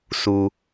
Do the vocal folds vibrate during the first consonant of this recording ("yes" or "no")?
no